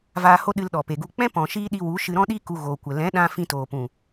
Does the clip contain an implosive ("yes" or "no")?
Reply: yes